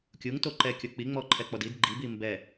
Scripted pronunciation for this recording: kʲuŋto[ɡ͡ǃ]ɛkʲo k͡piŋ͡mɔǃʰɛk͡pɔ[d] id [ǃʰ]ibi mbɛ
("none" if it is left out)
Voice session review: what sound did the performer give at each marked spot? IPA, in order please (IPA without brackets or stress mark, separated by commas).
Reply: ǃ, d, ɡ͡ǃ